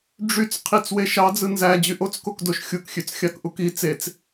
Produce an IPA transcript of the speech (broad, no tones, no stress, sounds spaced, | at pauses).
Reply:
ɖ͡ʐ y t͡s qʰ i t͡s w e ʃ ɑ d͡z ɯ n z æ d͡ʑ y ʔ o t͡s k o k d o ʃ xʲ u k xʲ ø t͡s xʲ ɑ k ʔ u k i t͡s e t͡s